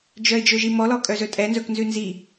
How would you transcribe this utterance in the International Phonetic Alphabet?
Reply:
d͡ʒœɪ̯d͡ʒɵʒimɔ lɔkʼœzɵtʼɛ nzɵknzʉnzi

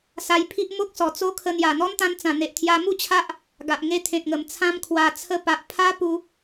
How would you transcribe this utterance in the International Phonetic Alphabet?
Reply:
sa˧jpʰi˦ʔ mo˦k̚sɔ˨˩t͡so˦kʰə˧ n̪ja˨˩n̪ɔ˦nt̪ã˧nt͡sã˨˩ n̪e˨ʔt̪ʰja˧mu˥˧t͡ɕʰa˦ʔ | ɡa˨ʔŋe˧t̪ʰẽ˨t̚ŋə˨˩m t͡sʰã˧mkʰwa˨˩ t͡sʰə˧pa˨ʔ pʰa˦ pu˧

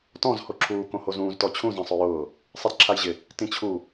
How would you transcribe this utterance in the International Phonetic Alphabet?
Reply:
tɔ̃z hoǁʰuː kõhozũːz tɔt͡ɕʰũ zɛ̃sˤʊjʊː | sˤidǁʰajʑɪ | tĩt͡ɕʰu

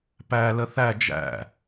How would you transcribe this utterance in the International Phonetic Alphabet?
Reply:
pæ ləθæ d͡ʒæ̰

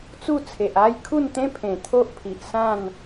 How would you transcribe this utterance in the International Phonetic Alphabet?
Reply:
t͡su˥˧t͡sʰe˨ʔ a˥˧jkʰu˥˧nt̪ẽ˦pʰẽ˨˩ t̪ʰo˦ʔpʰi˨ʔ sã˥˧n

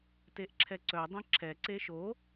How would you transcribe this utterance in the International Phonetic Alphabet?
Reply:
teʔǁʰɛǀœdˤɛ̃ ǁʰɛǀe ʃo

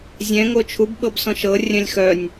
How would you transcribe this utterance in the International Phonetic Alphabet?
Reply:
zʲɛ̃ ŋot͡ʃʰub ɓɤbsɔ̃ʃɤ rʲœ̃lʲxœnʲ

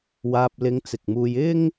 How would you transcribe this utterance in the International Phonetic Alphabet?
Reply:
waː˧p̚lɪ˧ŋt͡sɪ˨k̚muː˧j ɪ˥ŋ

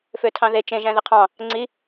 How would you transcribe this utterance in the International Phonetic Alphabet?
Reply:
føtʰɑ̃ðe t͡ʃẽ ʒæ̃ðiqʰɑ̃ | ŋ͡ǀi

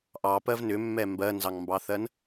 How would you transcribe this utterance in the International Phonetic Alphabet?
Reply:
ʔɑpɜv nʏmːɛ mbɜnzɑŋmbɑθɜn

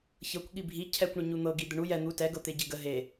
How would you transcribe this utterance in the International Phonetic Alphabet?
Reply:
çɤkʷ ɠibʱi cʰɛkʷɳə ɲun̪ɤɡi d̪əɳu jɛ n̪u tɛɡɤt̪e ɟeɡə ɦe

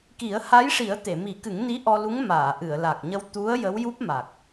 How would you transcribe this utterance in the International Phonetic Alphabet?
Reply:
ki˨˩˦ə̯ha˧˥jʂi˨˩˦ə̯ t̪e˨˩˨mi˨˩˦kɨ˨˩˦ŋni˧˥ ʔɔ˧lu˧˥ŋmaː˨˩˨ ʔɨ˨˩˨ə̯la˨˩k̚ɲə˧w t̪u˧˥ə̯ jə˧˥wju˦˥p̚ma˨˩k̚

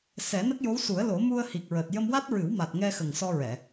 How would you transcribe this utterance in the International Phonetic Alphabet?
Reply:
sɛ˨˩˦nə˦˥k̚jo˧˥w su˨˩˦ə̯ lo˨˩˦mu˧ə̯hi˨˩k̚ɹəː˨˩t̚ jə˧mwa˦˥t̚ɹɨ˨˩˦w ma˨˩t̚ŋɛ˧xə˨˩ŋ sɔ˧ɹɛ˨˩˨

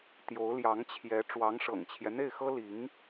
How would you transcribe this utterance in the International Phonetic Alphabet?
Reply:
t̪jo˧˥ʊ̯ ljɑ˧˥ŋt͡ɕʰjɛ˧˥ ʈ͡ʂwɑ˧˥ŋʂɤ̰˨˩ŋt͡ɕʰjɛ˦ n̪e˥˩ɪ̯xɤ˥li˧˥ŋ

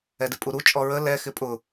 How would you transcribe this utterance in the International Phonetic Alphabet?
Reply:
ɛdɪpʼuɾu t͡ʃʼɔɹə lɛ xɪpʼʊ

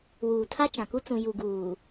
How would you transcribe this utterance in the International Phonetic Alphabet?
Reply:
wuː˨tʰa˦t͡ʃã˨ku˦ t͡sũ˨ju˨ ɡuː˨

